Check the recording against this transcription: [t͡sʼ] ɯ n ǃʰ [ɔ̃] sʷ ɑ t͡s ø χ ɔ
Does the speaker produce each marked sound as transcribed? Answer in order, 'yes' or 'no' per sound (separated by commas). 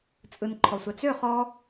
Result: yes, no